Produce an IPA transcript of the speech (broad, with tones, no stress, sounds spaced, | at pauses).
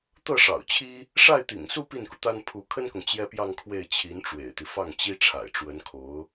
t̪ ɤ˥˩ ʂ ɑ̰˨˩ ʊ̯ t͡ɕʰ i˥ | ʂ a˥˩ ɪ̯ t̪ ḭ˨˩ ŋ s u˥˧ p i˥˩ n k u˩ t̪ a˥ n pʰ u˧˥ kʰ ə˥ n k ʊ˨ ŋ t͡ɕ j ɛ˥ p j ɑ˥˧ ŋ kʰ w e˥˩ ɪ̯ t͡ɕʰ i˧˥ n ʈ͡ʂ w ḛ˨˩ ɪ̯ t̪ i˦ f ɑ˥˩ ŋ t͡ɕ i˥ ʈ͡ʂʰ a̰˨˩ ɪ̯ ʈ͡ʂ w ə˧˥ n kʰ o˧˥ ʊ̯